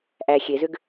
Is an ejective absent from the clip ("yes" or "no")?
yes